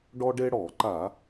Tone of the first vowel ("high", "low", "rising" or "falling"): high